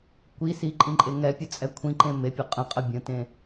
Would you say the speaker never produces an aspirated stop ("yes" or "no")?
no